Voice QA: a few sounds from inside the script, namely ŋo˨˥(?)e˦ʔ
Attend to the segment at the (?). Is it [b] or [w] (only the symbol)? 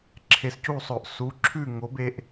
b